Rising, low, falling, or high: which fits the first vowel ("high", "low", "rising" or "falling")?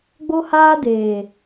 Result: high